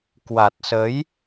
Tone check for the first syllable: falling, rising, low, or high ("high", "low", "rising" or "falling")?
low